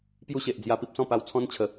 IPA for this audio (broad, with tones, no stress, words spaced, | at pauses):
pju˥˧ɕe˨ʔd͡zja˧ pi˦p̚sɔ̃˥˧ pa˧wt͡sʰɔ̃˦n t͡ɕʰə˨˦